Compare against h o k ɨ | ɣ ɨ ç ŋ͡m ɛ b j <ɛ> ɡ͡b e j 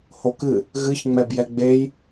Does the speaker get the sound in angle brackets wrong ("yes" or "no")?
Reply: no